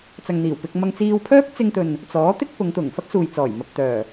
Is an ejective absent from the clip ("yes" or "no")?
yes